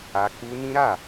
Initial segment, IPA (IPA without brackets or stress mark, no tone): a